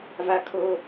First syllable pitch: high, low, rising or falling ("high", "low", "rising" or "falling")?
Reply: high